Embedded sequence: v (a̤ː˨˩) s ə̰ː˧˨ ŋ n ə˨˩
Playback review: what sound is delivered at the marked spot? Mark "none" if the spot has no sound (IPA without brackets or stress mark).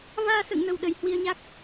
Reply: aː˧